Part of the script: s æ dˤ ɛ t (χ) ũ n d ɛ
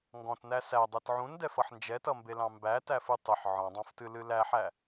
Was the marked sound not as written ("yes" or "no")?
yes